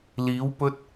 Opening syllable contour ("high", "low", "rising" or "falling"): rising